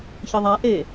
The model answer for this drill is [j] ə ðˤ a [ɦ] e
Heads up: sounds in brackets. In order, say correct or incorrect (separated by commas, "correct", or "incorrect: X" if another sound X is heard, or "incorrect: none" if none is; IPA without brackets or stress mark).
incorrect: ç, incorrect: ʔ